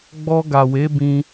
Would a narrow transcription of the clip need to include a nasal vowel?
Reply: yes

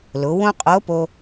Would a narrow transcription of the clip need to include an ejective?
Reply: yes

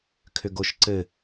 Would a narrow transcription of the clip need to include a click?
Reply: yes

